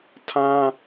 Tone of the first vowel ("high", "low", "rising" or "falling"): high